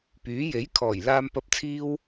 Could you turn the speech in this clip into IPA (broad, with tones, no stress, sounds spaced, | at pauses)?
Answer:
p yː˨˥ j e˨˥ j kʰ ɔː˨˩ j l aː˧ m p ɐ˧ p̚ t͡sʰ iː˥ w